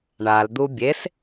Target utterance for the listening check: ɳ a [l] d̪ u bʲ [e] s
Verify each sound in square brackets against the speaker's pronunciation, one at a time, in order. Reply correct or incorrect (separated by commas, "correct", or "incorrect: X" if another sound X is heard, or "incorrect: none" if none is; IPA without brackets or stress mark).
correct, correct